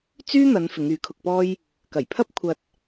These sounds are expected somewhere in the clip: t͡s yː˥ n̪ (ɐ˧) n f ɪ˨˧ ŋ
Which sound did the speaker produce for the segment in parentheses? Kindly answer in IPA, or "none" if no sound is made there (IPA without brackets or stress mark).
ɐ˨˧